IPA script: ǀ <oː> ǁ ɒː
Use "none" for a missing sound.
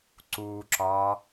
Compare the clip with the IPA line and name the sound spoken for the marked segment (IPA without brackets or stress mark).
uː